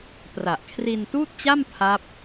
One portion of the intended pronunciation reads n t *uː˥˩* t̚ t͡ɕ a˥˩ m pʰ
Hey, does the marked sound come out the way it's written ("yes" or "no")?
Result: yes